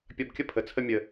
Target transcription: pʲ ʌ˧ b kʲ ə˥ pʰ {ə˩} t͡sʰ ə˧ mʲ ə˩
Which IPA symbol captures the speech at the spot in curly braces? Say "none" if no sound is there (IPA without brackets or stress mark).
ə˩